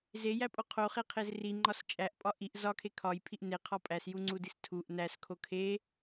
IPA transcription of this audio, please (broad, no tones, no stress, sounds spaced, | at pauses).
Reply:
z e j æ pʼ o qʰ o χ e qʰ e z r i ŋ͡ǃ ɒ s t͡ʃʼ æ ʔ pʼ ɒ ʔ i ʔ z ɒ kʰ e kʰ ɒ j pʰ i ʔ n e qʰ ɒ pʼ æ s j u ŋ͡ǀ u d i s tʰ u ʔ n æ s kʰ o kʰ e